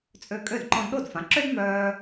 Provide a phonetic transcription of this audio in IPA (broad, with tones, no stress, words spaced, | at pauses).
t͡sʼø˧kʼø˥˩d ǃɔ̃˧dɗo˥˩dfã˩˥ ǁø˥dmœː˧